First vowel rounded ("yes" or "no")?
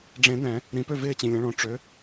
no